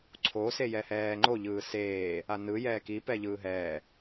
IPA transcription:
ǀʰ o s e j ɛ h ɛː ŋ͡ǃ o ʎ ɯː s eː | a n ɯ j ɛː k i p ɛ ʎ ɯː ɦ ɛː

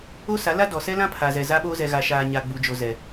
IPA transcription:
o˦ s a˨˦ l a˦ d ɔ˨ s ɛ˦ l ã˦ pʰ a˨ z ɛ˨ z a˦ ɓ oː˦ z ɛ˨ ɣ a˨ ʃ aː˨ ɲ a˨ ɡ͡b u˨ d͡ʒ o˨ z ɛ˨

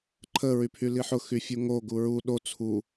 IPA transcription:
ǃʰ ə ɹ y pʰ y l i ħ ʊ x y fʲ u ŋ o ɡ u ɹ u ɗ o t͡sʰ u

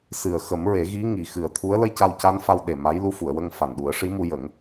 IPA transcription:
s ɨ˨˩ ə̯ x ə˨˩˦ m ɹ e˨˩˦ ɣ i˧˥ ŋ i˨˩ x ɨ˨˩ ə̯ t̪ʰ u˧˥ ə̯ l ə˧˥ j c a˧ w c a˧˥ n f a˧ w ɗ e˨˩ m a˧˥ j l u˧˥ f u˨˩˨ ə̯ w ə˧ ŋ f a˨˩ n ɗ u˨˩˦ ə̯ ʂ i˧˥ m u˧ j ə˨˩˦ ŋ

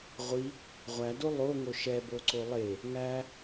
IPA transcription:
ʁʷ i | ʁʷ æ d o lˠ o ŋ o ʃ ɛ b o ǀ o lˠ e | ŋ æ

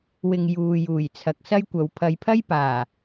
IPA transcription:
w ɪ˨ ŋ j uː˨ j uː˨˩ j t͡sʰ ɐ˨ k̚ s ɐ˥ j kʷ ɐ˨˧ w pʰ ɐ˨˧ j pʰ ɐ˥ j p aː˨˩

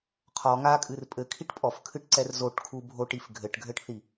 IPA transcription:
qʰ ɔ ŋ a kʼ ɨ r pʼ ɘ kʰ i ʈ pʼ ɔ f kʰ ɨ ʈ ǀ ɛ r z o ʈ kʰ u bʱ o ʈ i f ɡʱ ɘ ʈ ɡʱ ɘ ʈ θ i

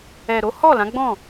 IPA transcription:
ɛ˨ ɾ o˨˦ h ɔ˦˨ l ã˨˦ ɡ͡b ɔ̃˦˨

